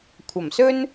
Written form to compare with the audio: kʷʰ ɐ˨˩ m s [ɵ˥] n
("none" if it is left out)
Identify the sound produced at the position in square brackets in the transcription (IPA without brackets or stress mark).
ɵ˥